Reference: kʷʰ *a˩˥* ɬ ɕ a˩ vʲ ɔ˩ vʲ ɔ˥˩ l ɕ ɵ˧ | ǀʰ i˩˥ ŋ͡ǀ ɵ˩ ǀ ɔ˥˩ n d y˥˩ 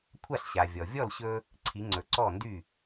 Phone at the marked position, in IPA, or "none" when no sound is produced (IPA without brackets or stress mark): a˥˩